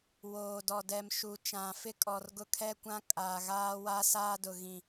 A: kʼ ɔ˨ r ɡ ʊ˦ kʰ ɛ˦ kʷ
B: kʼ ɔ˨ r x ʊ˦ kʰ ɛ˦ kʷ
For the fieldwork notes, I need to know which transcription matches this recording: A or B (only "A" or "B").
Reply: A